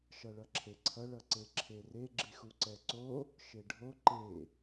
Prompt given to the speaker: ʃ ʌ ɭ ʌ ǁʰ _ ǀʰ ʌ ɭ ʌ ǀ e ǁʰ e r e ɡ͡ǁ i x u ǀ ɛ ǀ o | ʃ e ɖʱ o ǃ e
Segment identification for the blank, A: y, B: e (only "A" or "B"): B